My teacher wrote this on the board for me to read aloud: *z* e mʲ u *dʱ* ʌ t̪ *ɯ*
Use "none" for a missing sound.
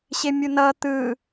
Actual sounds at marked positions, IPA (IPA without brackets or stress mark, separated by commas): ɕ, n, ɯ